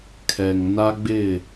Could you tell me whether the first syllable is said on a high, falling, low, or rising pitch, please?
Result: low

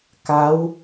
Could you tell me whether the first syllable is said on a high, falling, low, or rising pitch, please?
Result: rising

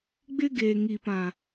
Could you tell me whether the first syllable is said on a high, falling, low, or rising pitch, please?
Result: high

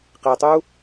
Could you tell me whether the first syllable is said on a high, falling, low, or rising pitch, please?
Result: low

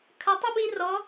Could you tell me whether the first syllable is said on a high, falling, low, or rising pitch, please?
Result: low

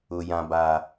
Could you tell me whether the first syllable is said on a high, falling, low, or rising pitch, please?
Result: low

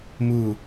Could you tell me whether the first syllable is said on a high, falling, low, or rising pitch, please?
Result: falling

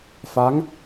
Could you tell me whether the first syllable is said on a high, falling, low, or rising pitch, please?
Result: rising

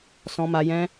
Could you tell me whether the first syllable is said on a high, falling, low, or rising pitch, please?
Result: high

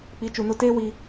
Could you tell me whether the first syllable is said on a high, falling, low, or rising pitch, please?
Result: rising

